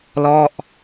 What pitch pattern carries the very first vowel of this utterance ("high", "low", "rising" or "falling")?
falling